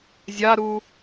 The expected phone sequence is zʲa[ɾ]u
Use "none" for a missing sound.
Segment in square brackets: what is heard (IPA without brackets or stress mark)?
ɾ